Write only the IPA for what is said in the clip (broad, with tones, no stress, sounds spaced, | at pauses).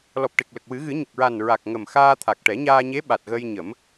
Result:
l ɔ˨˩ p̚ ʈ e˨˩ k̚ l ə˨˩ k̚ w ɨ˨˩˦ ɣ ɨ˨˩˦ ɲ ə˨˩ k̚ ɹ a˨˩ n ɹ a˨˩ k̚ ŋ ə˨˩ m x aː˧ t̪ʰ a˨˩ k̚ ʈ ɛ˨˩˦ ɲ aː˧ ɲ e˧˥ ɓ a˨˩ t̚ ɣ ə˧ j ɲ ə˨˩˦ m